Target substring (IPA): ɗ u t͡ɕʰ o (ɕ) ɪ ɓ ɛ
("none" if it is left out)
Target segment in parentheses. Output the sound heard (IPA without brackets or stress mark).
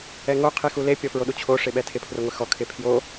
ʂ